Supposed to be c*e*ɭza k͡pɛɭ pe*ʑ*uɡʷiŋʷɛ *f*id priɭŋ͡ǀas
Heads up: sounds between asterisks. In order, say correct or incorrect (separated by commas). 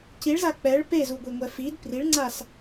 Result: incorrect, incorrect, correct